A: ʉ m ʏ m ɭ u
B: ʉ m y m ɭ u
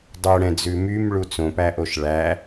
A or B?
B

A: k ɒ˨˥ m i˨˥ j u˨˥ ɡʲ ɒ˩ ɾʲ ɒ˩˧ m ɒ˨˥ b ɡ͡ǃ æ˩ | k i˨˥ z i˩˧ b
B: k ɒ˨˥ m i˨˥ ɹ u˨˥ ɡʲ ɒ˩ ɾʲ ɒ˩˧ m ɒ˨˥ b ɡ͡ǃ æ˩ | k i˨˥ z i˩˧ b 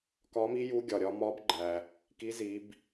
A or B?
A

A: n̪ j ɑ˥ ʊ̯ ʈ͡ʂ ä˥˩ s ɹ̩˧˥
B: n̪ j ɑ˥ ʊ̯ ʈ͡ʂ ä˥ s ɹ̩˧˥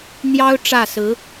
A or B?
A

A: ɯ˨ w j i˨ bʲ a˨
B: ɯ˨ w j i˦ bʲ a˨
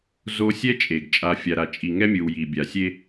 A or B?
A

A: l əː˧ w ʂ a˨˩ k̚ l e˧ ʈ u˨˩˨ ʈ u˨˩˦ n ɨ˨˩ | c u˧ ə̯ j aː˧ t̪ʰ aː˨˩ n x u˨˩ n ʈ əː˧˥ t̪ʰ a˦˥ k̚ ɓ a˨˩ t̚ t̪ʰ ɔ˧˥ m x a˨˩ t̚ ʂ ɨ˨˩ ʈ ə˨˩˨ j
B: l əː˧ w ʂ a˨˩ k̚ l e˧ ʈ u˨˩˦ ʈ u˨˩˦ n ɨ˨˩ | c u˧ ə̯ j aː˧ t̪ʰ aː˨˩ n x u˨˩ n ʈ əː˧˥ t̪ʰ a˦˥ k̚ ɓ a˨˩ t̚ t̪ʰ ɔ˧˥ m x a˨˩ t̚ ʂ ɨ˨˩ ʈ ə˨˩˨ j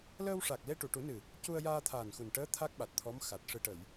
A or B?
A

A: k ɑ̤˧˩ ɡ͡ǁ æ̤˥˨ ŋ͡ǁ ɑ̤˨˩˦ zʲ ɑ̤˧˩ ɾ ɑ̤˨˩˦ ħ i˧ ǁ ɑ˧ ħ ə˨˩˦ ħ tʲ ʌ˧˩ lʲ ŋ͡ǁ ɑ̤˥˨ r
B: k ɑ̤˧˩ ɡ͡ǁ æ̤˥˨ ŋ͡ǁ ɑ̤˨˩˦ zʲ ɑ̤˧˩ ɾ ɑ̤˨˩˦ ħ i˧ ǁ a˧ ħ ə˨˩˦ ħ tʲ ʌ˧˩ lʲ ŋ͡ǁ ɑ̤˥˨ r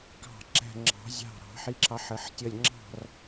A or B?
A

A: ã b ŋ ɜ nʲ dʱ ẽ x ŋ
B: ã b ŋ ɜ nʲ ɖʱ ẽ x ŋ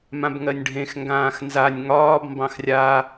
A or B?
B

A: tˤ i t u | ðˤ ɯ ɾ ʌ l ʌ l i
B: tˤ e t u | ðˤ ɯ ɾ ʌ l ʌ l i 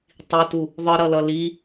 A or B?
A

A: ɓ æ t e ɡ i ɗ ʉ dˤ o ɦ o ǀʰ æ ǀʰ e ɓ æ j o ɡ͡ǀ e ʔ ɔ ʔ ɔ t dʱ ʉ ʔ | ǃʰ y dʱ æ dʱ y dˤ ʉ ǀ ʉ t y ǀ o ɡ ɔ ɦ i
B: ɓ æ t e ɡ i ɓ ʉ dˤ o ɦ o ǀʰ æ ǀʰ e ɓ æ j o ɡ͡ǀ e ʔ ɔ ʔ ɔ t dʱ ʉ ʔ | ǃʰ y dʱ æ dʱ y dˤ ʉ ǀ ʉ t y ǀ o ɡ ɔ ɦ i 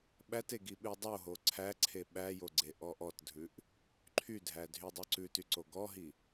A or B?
B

